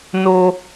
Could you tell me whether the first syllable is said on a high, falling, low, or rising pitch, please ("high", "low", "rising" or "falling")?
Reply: high